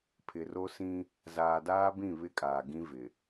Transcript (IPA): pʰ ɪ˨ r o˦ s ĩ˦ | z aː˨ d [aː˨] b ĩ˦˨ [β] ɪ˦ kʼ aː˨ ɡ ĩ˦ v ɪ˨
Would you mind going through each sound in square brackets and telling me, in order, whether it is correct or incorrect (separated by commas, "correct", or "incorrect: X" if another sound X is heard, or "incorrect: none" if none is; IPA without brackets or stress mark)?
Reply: incorrect: aː˦, correct